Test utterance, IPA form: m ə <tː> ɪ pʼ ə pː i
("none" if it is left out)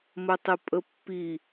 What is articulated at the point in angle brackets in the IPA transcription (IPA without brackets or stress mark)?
tˤ